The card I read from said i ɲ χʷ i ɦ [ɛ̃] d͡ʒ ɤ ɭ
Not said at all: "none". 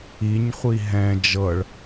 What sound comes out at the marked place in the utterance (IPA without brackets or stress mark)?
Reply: ɛ̃